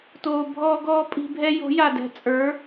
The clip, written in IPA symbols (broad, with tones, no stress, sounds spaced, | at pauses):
t oː˧ bʱ ɔː˦ ɡ ɔː˦ pʼ i̤˧ bʱ ɛ˦ j o̤˨˦ j a˨ d ɛ̤˨ t͡sʼ ə˞˨˦